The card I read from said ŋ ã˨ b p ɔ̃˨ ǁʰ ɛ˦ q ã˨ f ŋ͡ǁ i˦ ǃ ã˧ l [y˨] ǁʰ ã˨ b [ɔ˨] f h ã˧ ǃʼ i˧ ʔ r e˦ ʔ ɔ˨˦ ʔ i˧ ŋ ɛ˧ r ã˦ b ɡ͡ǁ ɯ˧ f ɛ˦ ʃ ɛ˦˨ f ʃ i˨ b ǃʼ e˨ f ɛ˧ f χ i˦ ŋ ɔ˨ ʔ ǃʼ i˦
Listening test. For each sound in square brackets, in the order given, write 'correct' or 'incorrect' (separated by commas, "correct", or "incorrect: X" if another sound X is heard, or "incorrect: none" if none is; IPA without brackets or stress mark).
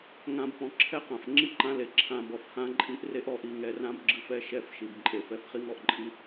incorrect: e˨, correct